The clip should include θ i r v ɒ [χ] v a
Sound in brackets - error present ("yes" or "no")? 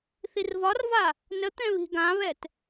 yes